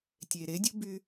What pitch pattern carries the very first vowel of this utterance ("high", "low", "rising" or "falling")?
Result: low